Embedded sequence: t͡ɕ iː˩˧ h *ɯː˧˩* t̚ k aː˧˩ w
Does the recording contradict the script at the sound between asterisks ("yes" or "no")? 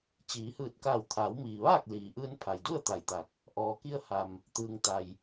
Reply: no